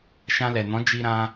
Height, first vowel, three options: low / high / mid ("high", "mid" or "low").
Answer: low